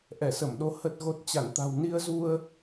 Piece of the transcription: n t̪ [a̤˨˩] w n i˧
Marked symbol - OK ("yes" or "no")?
yes